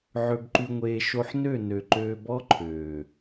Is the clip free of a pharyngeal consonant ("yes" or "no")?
no